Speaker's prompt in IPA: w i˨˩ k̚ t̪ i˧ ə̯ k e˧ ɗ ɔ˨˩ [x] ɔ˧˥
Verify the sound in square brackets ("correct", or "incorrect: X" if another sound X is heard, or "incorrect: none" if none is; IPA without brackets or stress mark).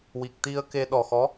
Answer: correct